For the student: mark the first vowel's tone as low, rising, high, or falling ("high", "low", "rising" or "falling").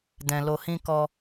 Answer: low